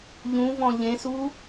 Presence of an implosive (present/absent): absent